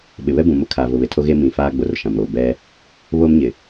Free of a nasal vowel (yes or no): no